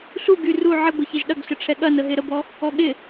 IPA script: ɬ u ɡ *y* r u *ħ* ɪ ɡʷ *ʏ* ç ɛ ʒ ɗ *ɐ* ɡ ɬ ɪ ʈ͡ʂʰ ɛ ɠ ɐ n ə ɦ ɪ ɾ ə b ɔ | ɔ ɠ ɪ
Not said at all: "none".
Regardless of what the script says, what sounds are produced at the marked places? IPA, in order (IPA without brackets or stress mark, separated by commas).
y, ʕ, ɪ, ɐ